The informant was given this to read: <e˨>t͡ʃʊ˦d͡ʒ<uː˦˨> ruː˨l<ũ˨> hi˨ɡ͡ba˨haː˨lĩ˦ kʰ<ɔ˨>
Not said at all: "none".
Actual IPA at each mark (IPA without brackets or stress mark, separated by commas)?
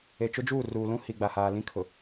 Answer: e˨, uː˦˨, ũ˦, ʊ˨